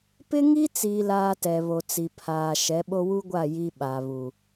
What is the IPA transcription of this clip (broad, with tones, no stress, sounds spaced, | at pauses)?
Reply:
p ɪ˦ ŋ i˦ t͡s iː˦ l aː˦ t ɛ˨ β o˨ t͡s i˨ pʰ aː˨ ʃ ɛ˨˦ ɓ o˦ w u˦ ɡʷ a˦˨ j i˦ ɓ a˨ β u˨